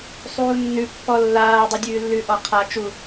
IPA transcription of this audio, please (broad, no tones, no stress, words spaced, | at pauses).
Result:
sˤuːnːʉ pːɔlːaː dˤudʲʉːlːʉ ʔɔqʰa t͡ʃu